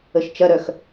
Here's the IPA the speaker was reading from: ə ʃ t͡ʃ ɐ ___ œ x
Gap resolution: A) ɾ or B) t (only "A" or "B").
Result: A